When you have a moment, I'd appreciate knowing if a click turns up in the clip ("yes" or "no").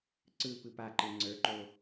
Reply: yes